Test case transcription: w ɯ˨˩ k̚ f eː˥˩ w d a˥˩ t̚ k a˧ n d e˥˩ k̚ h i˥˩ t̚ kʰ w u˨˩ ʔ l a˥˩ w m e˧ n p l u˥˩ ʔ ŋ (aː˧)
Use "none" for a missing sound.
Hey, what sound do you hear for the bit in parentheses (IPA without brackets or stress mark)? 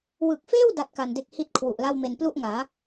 aː˩˦